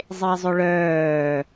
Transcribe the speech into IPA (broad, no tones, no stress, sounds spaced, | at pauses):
zˤ e zˤ ʏ ɭ œː